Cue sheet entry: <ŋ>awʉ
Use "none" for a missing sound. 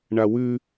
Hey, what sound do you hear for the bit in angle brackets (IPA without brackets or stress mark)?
ɳ